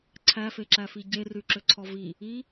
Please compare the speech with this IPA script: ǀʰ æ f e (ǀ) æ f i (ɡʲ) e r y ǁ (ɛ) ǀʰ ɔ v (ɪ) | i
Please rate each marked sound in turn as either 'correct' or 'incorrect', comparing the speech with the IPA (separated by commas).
incorrect, incorrect, incorrect, incorrect